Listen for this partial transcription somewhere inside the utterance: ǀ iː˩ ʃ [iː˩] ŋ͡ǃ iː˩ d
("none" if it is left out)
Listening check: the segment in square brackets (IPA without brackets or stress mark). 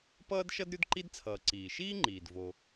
iː˥